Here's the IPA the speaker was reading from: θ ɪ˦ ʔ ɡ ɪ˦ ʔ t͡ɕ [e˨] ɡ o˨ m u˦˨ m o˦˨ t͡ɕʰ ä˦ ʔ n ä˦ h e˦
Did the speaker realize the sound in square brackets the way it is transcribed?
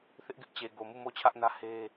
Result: yes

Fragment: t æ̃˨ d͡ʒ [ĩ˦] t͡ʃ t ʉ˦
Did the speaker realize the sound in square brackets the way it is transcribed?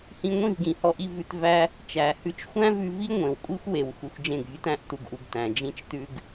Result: yes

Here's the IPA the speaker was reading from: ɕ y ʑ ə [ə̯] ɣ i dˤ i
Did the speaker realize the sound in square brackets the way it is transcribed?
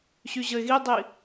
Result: no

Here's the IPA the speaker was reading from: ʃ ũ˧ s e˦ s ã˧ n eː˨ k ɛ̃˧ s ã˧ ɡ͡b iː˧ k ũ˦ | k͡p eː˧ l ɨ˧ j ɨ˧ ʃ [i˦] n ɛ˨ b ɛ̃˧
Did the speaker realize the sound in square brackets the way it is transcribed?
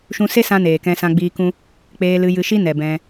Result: yes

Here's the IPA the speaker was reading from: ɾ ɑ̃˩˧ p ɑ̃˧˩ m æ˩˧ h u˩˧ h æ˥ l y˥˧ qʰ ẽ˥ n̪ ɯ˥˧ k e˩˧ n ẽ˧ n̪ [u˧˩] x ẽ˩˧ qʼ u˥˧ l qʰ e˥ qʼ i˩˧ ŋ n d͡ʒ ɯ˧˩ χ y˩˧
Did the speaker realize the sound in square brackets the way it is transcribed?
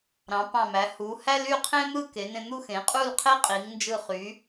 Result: no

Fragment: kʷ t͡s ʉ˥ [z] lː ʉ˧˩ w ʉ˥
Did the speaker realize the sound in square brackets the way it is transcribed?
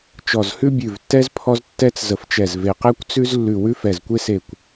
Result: yes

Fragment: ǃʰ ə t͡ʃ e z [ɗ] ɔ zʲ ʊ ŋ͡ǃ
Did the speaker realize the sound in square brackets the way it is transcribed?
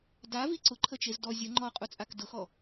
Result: no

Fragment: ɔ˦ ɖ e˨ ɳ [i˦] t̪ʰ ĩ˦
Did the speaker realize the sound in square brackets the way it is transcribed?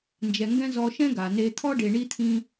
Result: yes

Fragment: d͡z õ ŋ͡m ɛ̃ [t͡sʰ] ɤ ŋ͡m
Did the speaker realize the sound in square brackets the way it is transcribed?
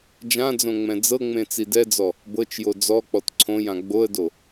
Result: no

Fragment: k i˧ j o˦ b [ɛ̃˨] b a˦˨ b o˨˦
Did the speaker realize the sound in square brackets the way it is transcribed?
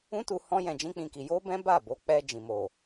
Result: no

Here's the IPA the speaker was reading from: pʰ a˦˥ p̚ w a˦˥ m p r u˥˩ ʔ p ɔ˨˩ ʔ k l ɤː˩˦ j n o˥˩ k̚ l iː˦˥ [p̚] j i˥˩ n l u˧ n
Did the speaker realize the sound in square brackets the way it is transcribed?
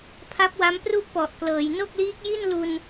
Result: no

